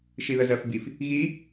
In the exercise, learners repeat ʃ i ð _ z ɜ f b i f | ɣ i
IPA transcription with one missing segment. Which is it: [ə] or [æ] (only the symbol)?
ə